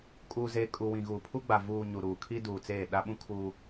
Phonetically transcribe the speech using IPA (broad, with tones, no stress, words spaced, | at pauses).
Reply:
kʼuː˨zeː˨ kʼu˨wĩ˨ ɣuː˨pʰu˦ɡ͡ba˨ vuː˨ ɲu˨ɾuː˨kʰi˦ duː˨t͡seː˦˨ ɗa˦ɓũ˦kʰuː˦